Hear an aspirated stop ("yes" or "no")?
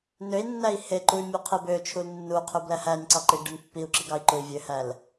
yes